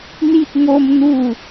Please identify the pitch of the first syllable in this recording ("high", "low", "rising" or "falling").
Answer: high